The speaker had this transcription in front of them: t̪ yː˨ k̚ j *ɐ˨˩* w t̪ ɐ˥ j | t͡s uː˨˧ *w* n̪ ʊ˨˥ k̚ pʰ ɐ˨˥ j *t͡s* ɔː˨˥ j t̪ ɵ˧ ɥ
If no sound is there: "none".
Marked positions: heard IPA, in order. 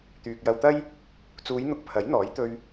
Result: ɐ˧, j, n̪

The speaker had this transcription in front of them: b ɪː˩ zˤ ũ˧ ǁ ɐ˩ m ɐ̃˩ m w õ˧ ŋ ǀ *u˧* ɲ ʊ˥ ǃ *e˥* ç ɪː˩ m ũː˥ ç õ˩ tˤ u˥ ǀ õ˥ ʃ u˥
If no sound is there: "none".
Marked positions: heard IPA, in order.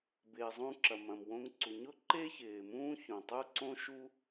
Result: u˩, e˥

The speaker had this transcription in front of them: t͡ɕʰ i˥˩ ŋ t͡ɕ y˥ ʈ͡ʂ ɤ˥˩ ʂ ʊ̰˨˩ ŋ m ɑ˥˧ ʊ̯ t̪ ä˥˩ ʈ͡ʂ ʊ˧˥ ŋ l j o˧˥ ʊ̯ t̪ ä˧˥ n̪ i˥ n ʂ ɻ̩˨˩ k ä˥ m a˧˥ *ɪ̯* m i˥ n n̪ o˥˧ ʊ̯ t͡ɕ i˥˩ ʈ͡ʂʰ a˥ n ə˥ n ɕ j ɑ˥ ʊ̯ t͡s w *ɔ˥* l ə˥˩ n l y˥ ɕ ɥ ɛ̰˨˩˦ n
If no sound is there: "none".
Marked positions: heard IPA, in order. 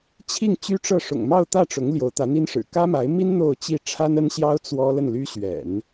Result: ɪ̯, ɔ˥

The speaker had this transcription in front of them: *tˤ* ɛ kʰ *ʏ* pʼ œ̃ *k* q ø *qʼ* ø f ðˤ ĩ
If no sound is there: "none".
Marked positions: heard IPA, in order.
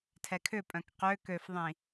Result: tʰ, ʏ, k, k

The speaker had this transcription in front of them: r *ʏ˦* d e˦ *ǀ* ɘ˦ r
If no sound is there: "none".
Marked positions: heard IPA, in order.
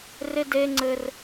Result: ɪ˦, ŋ͡ǀ

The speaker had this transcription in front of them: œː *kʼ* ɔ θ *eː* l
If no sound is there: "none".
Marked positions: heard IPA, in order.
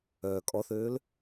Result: kʼ, øː

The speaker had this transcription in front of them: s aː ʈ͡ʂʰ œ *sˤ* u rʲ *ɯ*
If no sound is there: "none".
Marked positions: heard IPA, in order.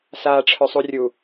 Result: sˤ, u

